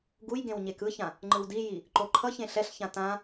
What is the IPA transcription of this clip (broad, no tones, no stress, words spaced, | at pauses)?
ɡuj ɡẽwɲekɯçã | ŋ͡ǃɯwdiji | ǃoǃʰʌçẽ ɬɛɬçã tã